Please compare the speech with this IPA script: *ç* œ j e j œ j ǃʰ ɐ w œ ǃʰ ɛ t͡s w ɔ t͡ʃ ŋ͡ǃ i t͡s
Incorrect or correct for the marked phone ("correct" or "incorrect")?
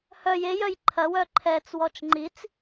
incorrect